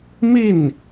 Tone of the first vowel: falling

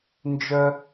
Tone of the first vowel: high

